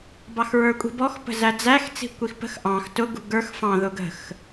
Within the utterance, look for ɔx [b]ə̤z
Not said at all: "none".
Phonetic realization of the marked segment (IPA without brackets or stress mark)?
p